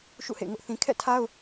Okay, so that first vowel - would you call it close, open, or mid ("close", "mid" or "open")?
close